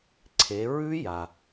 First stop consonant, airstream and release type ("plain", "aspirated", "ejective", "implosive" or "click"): click